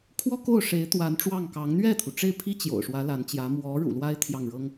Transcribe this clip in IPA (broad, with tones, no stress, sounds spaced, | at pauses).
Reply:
kʰ w ɔ˥ k o˥˩ ʊ̯ ʂ e˧˥ ɪ̯ t̪ w a˧˥ n ʈ͡ʂ w ɑ˥˩ ŋ k ɑ˧˥ ŋ n̪ ɥ ɛ˥˩ t̪ʰ u˩ ʈ͡ʂ e˥˩ ɪ̯ pʰ i˥ t͡ɕ j o̰˨˩ ʊ̯ ʂ w ä˧˥ l a˧˥ n t͡ɕ j ä˧˥ m w ɔ˧˥ ɻ ṵ˨˩ l w a˥ ɪ̯ t̪ʰ j ɑ˥˩ ŋ ɻ ɤ˥ ŋ